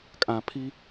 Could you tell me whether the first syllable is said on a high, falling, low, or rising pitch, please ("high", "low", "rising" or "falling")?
low